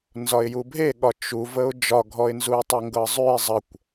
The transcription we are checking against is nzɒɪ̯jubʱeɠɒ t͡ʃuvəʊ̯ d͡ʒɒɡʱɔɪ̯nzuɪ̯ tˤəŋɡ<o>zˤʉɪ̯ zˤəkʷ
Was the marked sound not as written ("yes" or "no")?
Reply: yes